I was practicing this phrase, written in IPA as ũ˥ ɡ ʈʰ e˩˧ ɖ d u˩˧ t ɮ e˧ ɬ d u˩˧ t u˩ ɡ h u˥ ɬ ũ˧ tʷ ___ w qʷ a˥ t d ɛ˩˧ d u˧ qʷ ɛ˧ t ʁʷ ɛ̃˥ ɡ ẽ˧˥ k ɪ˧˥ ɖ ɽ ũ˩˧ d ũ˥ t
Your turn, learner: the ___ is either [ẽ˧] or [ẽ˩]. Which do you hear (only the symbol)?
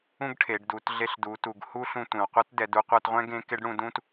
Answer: ẽ˩